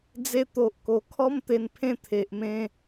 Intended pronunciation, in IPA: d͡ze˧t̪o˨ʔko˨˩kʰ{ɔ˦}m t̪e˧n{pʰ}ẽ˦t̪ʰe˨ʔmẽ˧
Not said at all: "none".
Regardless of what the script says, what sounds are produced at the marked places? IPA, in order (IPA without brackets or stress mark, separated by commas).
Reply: ɔ˦, pʰ